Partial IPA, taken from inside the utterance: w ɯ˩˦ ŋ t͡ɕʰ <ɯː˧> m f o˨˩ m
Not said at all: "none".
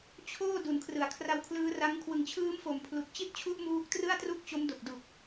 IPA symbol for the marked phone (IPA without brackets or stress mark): ɯː˦˥